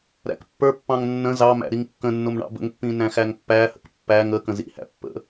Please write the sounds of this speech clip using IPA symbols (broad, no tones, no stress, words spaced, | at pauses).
ɾæ̰kpːə˞pːɑ̃ŋ nːə̃ zɑmæ̰ ɾiŋkːə̃nːʊm ɳɑ̰bə̰ŋpːĩ næ̃xæŋpːæhə̰k pːæŋ ə kə̃zḭhæ̰ pːə̰